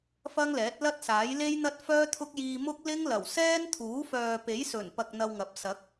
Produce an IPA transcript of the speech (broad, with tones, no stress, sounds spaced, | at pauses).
f ɐ˥ ŋ l ɛː˨˥ t̚ l ɐ˥ t̚ s aː˨˥ j l e˥ j n̪ ɐ˥ t̚ f œː˥ t̪ʰ ʊ˥ k̚ j iː˧ m ʊ˥ k̚ l ɪ˥ ŋ l ɐ˨˩ w s ɛː˥ n t̪ʰ uː˨˥ f œː˨ p e˨˥ j s ɵ˨˩ n p ɐ˨ k̚ n̪ ɐ˧ w ŋ ɐ˨˥ p̚ s ɐ˨˥ k̚